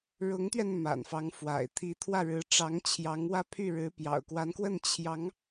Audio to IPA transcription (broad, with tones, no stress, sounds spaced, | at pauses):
ɻ ʊ˧˥ ŋ t̪ ɥ ɛ˧ n m a̰˨˩ n f ɑ˧˥ ŋ f w a̰˨˩ ɪ̯ t̪ʰ i˧˥ t̪ʰ w ä˥˩ ɻ ɻ̩˧˥ ʈ͡ʂ ɑ˧˥ ŋ t͡ɕʰ j ɑ˧˥ ŋ w ä˥˧ pʰ y˥˩ ɻ ɻ̩˧˥ p j ɑ̰˨˩ ʊ̯ k w a˧˥ n k w ə˥˩ n t͡ɕʰ j ɑ˧˥ ŋ